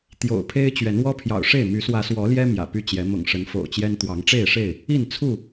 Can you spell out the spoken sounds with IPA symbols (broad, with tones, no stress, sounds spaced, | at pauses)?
t̪ j o̰˨˩ ʊ̯ pʰ e˦ ɪ̯ t͡ɕ ɥ ɛ˨˦ n w ɔ˦ pʰ j ɑ̰˨˩ ʊ̯ ʂ e˥˨ ɪ̯ m y˨˦ s w ä˨˦ s w ɔ˨˦ l j ɛ˦ m j ä̰˨˩ p y˦ t͡ɕ j ɛ˨˦ m ʊ̰˨˩ ŋ ʂ ə˨˦ n f o̰˨˩ ʊ̯ t͡ɕ j ɛ˦ n t̪ w ɑ˨˦ ŋ ʈ͡ʂ e˥˨ ɪ̯ ʂ e˥˨ ɪ̯ | i˥˨ n t͡sʰ u˥˨